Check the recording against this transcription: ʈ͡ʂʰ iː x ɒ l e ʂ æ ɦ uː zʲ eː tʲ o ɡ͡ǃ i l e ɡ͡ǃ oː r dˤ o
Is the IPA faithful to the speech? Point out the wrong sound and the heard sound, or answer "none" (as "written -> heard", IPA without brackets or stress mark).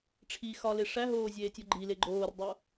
uː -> oː